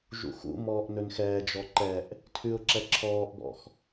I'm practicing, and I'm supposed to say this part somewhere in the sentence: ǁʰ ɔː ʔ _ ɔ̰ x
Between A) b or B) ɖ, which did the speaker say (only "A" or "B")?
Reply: A